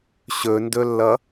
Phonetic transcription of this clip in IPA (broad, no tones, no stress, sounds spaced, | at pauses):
ɕ ɵ n d ɵ lː ʌ